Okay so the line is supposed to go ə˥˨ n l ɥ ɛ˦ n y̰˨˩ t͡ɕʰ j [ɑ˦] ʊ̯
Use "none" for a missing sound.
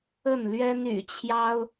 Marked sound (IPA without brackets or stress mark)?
ɑ˦